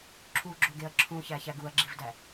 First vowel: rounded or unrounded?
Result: rounded